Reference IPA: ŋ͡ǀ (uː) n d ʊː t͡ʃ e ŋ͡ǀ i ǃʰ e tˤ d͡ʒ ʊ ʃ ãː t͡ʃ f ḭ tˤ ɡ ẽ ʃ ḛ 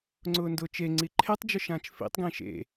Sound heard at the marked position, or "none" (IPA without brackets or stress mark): ʊː